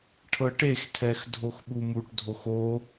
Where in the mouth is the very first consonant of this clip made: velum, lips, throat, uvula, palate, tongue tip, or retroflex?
retroflex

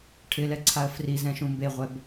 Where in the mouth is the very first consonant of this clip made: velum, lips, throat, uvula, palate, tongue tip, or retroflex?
retroflex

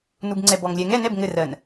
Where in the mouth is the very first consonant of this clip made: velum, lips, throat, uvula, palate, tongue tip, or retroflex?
tongue tip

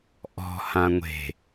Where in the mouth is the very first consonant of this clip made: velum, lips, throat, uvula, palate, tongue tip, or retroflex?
throat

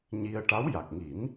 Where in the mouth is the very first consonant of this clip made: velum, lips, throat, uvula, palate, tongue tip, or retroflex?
palate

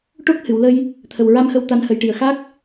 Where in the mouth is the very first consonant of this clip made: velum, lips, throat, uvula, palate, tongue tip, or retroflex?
retroflex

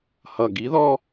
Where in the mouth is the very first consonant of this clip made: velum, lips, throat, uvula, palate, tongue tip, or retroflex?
throat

